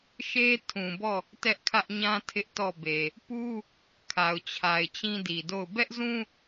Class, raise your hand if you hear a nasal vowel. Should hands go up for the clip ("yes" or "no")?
yes